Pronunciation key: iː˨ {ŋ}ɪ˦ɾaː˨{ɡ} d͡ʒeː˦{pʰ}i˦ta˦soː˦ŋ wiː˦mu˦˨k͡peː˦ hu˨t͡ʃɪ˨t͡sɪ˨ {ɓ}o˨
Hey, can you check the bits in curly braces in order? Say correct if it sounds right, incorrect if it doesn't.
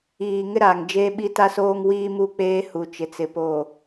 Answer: correct, incorrect: ŋ, incorrect: ɓ, incorrect: p

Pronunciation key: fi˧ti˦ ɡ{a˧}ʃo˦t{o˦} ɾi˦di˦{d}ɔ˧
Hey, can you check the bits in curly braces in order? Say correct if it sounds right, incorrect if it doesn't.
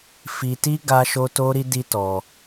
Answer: incorrect: a˦, correct, incorrect: t

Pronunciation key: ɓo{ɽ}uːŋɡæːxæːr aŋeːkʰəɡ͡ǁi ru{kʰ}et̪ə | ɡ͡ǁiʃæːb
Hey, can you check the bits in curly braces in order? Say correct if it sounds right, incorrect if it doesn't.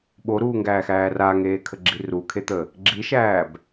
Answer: incorrect: ɾ, correct

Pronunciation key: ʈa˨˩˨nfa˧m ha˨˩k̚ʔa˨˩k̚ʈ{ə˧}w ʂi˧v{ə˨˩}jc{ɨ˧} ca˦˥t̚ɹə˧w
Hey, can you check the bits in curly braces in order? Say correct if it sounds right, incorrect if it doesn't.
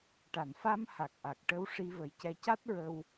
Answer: correct, correct, incorrect: ɛ˧

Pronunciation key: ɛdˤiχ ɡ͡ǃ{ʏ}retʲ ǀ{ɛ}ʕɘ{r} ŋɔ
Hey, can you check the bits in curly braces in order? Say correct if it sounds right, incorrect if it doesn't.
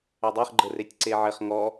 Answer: incorrect: ə, incorrect: e, incorrect: χ

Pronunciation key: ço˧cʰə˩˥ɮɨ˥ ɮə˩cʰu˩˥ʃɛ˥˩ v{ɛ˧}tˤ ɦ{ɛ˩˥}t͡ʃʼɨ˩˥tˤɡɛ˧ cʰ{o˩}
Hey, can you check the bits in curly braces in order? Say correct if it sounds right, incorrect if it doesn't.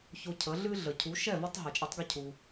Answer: incorrect: ɛ˥, incorrect: ɛ˩, incorrect: u˩

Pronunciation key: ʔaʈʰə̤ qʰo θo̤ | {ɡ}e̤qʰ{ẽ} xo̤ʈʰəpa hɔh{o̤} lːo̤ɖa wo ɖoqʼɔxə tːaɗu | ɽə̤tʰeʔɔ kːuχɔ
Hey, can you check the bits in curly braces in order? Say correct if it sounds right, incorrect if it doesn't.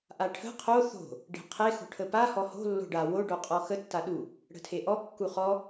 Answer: incorrect: ɖ, incorrect: e, correct

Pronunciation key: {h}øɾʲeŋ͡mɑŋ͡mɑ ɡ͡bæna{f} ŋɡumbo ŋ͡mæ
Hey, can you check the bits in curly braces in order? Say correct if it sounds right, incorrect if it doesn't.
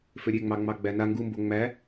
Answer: incorrect: f, incorrect: none

